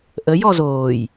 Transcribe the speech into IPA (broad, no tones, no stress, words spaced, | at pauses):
ʔə jɔzoːj